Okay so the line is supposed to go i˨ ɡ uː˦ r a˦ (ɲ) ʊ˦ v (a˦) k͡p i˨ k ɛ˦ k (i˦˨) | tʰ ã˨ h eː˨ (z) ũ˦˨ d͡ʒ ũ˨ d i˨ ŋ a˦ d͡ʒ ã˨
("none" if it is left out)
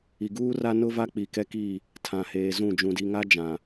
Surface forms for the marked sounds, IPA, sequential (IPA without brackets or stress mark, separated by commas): n, a˦, i˦˨, z